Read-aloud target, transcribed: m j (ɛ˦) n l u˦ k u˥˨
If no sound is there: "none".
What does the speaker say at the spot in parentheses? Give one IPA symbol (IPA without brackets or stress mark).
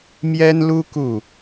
ɛ˦